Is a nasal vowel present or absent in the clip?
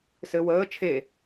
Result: absent